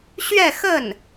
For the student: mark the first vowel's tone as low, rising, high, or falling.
falling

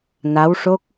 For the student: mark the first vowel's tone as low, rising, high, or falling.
rising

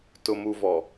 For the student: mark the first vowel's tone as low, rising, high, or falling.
low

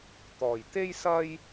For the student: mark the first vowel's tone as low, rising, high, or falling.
low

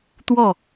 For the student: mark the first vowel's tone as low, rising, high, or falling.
falling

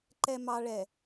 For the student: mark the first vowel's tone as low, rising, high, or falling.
low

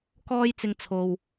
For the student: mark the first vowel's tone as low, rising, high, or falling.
high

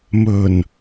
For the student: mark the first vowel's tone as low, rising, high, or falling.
low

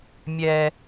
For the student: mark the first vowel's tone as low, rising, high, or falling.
high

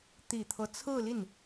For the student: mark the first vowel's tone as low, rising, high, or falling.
low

